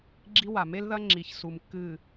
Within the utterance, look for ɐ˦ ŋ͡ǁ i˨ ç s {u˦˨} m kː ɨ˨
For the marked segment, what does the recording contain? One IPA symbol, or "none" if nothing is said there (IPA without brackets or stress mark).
u˨